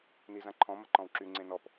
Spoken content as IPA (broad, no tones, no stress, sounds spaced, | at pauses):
n i z ã ǃʰ ɔ̃ m ɐ ǃ ɔ̃ w ǁ y ŋ͡ǀ ẽ n ɔ p